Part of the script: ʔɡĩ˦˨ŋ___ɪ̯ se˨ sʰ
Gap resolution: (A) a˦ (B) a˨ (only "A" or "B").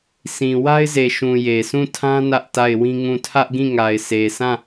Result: B